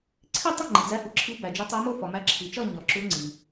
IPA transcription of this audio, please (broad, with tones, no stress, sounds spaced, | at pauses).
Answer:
ǀʰ i˥˧ tˤ u˥˧ ŋ͡ǃ i˨ d͡z æ˧˥ h u˨ ǁʰ i˧˥ b æ˨ d͡ʒ u˧˥ tˤ o˧˥ m o˥˧ f ɒ˨ m æ˧˥ ǁʰ i˨ t͡ʃ ɒ˥˧ ɲ ɒ˨ ǁ u˧˥ ŋ͡ǀ i˨